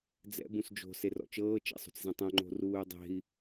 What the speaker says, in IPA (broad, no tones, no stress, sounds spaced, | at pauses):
d͡z ɛ̰ b ũ s d͡ʒ o̤ s e r ɔ̰ t͡ʃ ɤː t͡ʃ ḛ sˤ o̤ t͡s z ɛ̃ tˤ õ ŋ͡ǃ o̤ r uː y̯ dˤ e̤ i̯